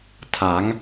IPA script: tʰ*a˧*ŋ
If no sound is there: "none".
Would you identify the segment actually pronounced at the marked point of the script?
a˩˦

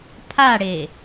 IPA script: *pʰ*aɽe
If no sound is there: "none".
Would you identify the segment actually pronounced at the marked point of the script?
pʰ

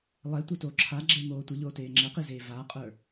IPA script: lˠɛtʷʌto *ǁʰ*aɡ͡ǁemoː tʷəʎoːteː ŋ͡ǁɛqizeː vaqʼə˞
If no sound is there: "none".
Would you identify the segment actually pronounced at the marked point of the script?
ǁʰ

